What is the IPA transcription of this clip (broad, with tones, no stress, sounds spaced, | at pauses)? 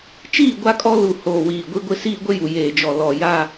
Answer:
t͡ʃ iː˦˨ ɡʷ a˦ kʼ ɔ˦ l u˨ h oː˨ w iː˨ ɡʷ i˦ ɡʷ ɪ˦ s iː˦ ɡʷ ɪ˦ j u˨ j eː˨ d͡ʒ ɔ˨ l ɔ˨ j a˦